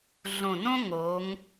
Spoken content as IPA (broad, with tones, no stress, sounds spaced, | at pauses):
ɮ õ˨˩ n õ˦ ŋ o˨˦ ŋ